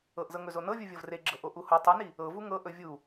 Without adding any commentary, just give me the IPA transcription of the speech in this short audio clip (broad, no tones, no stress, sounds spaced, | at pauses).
ɤ ʔ z ɤ ŋ ɵ z o n ɤ vʲ u vʲ ɤ v r e ɡ͡ǁ ɤ ʔ o ʔ u h o tˤ ɛ n i | ɤ v u ŋ ɤ ʔ ɵ vʲ u